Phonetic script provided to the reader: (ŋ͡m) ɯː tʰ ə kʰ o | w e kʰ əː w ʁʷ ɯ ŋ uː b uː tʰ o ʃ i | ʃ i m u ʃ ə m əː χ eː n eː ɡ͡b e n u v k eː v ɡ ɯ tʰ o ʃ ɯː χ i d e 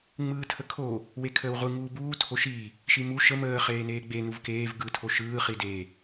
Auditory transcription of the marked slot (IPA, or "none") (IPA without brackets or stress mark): ŋ͡m